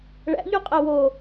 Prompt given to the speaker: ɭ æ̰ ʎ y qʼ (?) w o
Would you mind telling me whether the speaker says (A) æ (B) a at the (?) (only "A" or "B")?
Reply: A